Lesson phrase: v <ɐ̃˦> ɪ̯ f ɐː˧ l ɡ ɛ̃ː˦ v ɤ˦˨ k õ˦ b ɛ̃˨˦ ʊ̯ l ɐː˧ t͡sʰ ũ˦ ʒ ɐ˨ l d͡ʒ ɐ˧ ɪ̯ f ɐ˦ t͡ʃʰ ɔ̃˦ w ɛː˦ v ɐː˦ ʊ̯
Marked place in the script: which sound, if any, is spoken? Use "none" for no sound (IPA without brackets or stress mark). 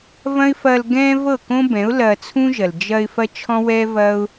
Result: ɐ̃˦